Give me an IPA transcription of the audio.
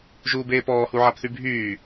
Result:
ʒuːbeːpɔː huʕapθybʱyː

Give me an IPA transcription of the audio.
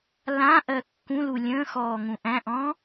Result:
lãʔɜ kːũlu lʲə̃ːxɔː ŋũʔæ̃ʔɔ̃ː

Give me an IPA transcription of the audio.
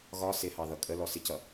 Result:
ɣɒ sɪhɑðʌ kʼə lɔsɪcʌ

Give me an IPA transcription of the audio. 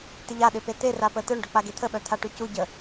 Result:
tɪʎa ɗɪpet̪e rapət̪œɳ ɖœk͡paɡet̪ʰə ɓœt̪ʰaʈycu ɟə

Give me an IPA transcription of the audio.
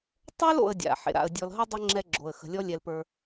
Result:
tˤə˞˦lo̰˨ə̯dʲa̰˩ ħḛ˩ɾa̰˨ə̯ dʲɔ˨lɦə˥ dˤə˥ ŋ͡ǁɛ˦ɡ͡ǁo˩ə̯ xə̤˨lʲɔ˦lʲɛ˨l pə˞˨

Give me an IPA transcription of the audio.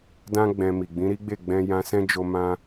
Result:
dã˦ ɡ͡bɛ̃˧mi˨ ɡ͡bĩ˨˦ɾi˦ɡ͡be˦˨ ɡ͡bɛ̃˧jã˧sɛ̃˦d͡ʒo˧ mã˦

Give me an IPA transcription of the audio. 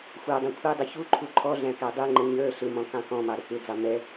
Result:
xʷə˞dˤɑ̃ kʷʰidˤə çuǃʰu ǃʰɔɮæ̃ kædˤiŋ͡ǃə ɲə˞ ɬɪmɔ̃ kɑ̃kɔ̃mɑ ɾəkɪd͡zɑ mɛ

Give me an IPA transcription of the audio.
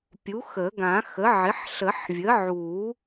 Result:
pʲu˩˥xə˨˩˦ɡã˨˩˦ xə˩˥ʕɪ˩˥ħ ɬə˨˩˦ħvʲə˩˥ʕuː˨˩˦

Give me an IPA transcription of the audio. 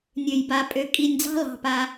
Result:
nʲø˩jba˨pʼø˨ kʼi˨nʲ d͡zɑ̤˦lɑ̤˨pa˨

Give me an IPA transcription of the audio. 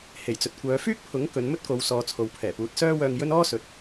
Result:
he˨˩jt͡sɵ˨t̚kʷœː˨˧ fyː˥k̚pʰʊ˨˥ŋ kɵ˨˧nmɵ˥t̚ko˨˧w sɔː˨t͡sʰo˨wpʰɛː˨˩puː˨˥t̚ sœː˥wœː˧ŋjɵ˥n ɔː˥sɵ˨t̚

